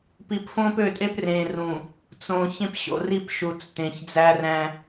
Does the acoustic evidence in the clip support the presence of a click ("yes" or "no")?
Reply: no